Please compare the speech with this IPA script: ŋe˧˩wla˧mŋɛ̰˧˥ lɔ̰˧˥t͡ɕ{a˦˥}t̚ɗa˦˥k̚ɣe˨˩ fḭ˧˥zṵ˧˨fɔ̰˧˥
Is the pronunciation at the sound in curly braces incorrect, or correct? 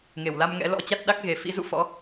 correct